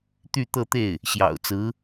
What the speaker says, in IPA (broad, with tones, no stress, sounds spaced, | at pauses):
t̪ y˥˧ t̪ ɤ˥˧ t̪ e˥˩ ɪ̯ | ɕ j ɑ̰˨˩ ʊ̯ t͡s ɹ̩˧˥